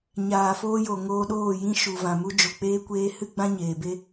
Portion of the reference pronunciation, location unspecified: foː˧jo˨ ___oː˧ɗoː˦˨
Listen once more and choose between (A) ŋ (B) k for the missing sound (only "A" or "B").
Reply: A